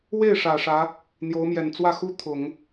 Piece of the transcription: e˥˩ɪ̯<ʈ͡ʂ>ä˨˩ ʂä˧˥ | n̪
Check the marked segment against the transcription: incorrect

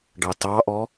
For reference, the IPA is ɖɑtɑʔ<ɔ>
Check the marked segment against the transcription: correct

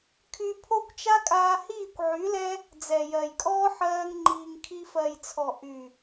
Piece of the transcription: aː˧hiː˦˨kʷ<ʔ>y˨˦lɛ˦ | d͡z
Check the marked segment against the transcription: incorrect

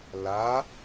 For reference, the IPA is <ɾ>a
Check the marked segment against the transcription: incorrect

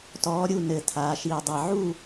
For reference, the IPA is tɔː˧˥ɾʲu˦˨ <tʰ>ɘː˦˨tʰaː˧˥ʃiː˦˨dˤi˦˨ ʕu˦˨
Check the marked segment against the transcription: incorrect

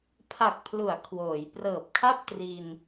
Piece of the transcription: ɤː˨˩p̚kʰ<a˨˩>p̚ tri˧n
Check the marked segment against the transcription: incorrect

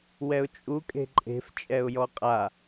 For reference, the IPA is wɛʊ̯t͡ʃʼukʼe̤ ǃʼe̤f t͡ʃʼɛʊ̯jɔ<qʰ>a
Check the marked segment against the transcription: incorrect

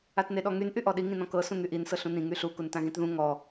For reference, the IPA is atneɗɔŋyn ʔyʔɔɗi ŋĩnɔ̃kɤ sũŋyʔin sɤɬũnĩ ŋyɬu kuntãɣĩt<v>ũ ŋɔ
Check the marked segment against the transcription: incorrect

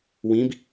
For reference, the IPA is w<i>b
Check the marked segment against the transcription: incorrect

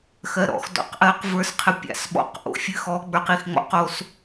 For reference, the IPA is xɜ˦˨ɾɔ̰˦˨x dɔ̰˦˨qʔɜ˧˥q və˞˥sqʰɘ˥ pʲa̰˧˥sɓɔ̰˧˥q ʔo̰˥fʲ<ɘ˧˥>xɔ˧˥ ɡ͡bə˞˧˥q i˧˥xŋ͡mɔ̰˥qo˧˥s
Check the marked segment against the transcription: incorrect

